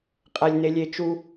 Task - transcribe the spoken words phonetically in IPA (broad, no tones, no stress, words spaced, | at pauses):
qʼælʲnelʲet͡ʃu